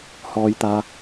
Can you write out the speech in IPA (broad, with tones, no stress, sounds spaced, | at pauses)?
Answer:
h ɔː˧ j t̪ aː˧